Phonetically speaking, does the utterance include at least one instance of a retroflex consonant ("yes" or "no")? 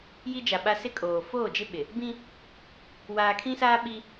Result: no